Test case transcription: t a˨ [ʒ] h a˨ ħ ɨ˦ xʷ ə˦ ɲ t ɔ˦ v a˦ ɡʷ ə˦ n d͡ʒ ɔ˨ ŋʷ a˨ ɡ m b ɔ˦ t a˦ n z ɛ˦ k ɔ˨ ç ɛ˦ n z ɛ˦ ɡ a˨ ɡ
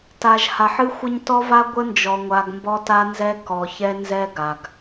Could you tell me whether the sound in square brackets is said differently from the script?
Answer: no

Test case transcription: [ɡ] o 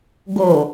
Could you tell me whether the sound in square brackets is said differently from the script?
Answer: no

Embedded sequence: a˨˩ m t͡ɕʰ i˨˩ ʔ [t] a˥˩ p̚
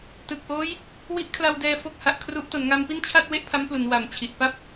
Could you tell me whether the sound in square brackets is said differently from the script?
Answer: yes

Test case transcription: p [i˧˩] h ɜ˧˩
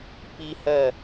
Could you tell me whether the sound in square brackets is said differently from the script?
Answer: yes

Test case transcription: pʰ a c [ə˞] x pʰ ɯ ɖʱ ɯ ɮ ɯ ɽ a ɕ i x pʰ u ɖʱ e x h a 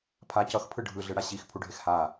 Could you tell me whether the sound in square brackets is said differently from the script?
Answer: yes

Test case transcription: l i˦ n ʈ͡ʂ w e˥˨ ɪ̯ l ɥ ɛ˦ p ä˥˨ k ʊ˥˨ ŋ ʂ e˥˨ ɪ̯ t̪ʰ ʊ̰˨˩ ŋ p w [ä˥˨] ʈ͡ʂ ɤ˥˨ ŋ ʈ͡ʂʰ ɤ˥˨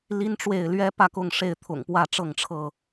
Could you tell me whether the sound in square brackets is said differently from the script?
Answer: no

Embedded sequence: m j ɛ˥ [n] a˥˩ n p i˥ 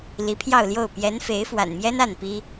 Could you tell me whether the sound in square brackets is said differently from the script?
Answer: no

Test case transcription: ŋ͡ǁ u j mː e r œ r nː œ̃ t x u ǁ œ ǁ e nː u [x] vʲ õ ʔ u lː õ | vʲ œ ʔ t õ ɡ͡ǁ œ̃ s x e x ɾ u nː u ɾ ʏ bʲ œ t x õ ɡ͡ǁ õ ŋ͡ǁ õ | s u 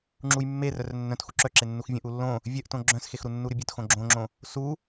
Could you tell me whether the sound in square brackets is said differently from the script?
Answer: no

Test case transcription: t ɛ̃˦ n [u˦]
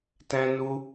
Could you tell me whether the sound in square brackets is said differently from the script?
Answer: no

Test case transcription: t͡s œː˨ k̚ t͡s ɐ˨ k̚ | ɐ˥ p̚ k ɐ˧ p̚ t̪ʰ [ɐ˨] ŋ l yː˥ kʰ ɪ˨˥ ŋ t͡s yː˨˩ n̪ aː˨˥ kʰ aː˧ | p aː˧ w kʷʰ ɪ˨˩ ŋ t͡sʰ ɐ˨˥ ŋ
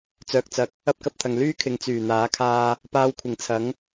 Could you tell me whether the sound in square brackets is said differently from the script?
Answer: no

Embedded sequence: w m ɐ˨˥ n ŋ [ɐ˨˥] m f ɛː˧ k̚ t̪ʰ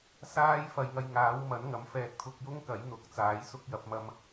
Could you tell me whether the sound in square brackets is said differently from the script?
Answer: no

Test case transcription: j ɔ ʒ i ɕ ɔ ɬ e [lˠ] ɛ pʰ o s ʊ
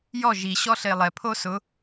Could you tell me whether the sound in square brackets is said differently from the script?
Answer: no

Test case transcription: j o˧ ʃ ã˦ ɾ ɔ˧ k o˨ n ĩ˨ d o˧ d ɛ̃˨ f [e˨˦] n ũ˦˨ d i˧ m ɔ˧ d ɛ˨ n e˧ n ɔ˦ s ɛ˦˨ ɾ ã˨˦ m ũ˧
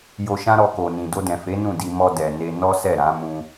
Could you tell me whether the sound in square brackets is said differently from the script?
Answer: no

